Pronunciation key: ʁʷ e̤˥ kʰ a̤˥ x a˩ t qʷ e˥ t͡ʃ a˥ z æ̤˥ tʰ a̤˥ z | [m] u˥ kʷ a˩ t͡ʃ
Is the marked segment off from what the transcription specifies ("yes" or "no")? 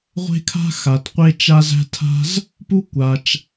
yes